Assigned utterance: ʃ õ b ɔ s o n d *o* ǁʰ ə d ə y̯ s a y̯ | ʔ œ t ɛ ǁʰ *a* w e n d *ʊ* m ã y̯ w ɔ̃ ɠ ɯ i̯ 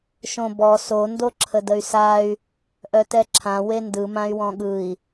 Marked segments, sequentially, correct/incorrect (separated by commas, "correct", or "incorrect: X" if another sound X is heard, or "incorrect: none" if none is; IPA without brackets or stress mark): correct, incorrect: ã, incorrect: ɯ